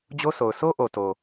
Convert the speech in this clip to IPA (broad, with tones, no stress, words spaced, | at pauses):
d͡ʑo˦so˨ʊ̯ so˦ʔo˨ to˨